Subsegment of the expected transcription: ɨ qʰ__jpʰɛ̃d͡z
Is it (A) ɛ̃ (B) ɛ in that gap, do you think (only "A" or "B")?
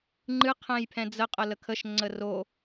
A